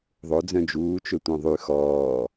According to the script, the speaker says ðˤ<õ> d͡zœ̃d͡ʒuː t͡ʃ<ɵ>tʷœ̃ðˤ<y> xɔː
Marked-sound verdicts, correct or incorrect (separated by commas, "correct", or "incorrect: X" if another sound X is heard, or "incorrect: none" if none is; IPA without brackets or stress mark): incorrect: o, correct, correct